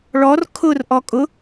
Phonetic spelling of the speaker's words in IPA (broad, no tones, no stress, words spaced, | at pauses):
ɭɔr kʰʊrʔɔ kʼʊ